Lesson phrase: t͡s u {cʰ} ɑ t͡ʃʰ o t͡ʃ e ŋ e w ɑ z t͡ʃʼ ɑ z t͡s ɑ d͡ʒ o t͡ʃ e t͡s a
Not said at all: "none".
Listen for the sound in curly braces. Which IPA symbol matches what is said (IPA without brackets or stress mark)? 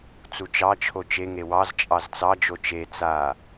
t͡ʃ